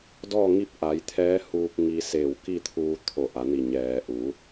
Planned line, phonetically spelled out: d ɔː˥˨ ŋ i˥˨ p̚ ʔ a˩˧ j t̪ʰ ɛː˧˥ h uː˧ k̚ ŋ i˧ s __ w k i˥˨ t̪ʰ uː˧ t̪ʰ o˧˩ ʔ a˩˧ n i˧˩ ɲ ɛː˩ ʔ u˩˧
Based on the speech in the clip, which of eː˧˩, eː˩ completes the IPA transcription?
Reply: eː˧˩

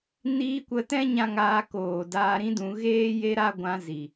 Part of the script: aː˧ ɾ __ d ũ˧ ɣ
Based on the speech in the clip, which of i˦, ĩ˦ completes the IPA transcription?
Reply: ĩ˦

